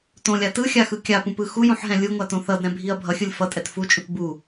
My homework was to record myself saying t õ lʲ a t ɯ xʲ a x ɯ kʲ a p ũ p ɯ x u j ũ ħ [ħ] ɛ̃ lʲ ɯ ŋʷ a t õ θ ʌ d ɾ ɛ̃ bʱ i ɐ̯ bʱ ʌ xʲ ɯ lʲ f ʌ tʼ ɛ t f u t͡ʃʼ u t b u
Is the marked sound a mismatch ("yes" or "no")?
yes